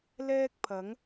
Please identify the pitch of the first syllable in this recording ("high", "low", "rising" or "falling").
high